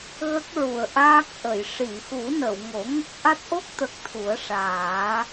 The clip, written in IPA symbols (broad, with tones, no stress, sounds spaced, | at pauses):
ɣ ə˦˥ k̚ ɹ u˨˩˨ ə̯ ʔ aː˦˥ k̚ ʔ ə˨˩˨ j ʂ i˨˩˨ x u˨˩˦ n ə˨˩˨ w ŋ o˨˩˦ ŋ ə˦˥ k̚ ʔ a˦˥ t̚ ʔ o˦˥ k̚ t̪ ə˨˩ k̚ t̪ʰ u˨˩˦ ə̯ ʂ aː˨˩˦